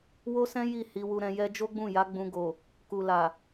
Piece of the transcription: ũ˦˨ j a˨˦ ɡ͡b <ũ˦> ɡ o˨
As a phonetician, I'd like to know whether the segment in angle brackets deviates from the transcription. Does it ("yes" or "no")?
yes